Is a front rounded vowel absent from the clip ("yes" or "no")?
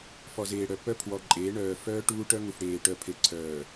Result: no